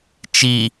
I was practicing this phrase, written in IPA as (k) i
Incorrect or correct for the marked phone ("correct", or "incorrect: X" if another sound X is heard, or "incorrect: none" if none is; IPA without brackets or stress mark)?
incorrect: t͡ʃ